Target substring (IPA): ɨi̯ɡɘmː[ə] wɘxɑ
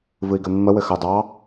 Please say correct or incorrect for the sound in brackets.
correct